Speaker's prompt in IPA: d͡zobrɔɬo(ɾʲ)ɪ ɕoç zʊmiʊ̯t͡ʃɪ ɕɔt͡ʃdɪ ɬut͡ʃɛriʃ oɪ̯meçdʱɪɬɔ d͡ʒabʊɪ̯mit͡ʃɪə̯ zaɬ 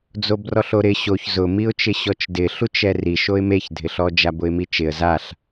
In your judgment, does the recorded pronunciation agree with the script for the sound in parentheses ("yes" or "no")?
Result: no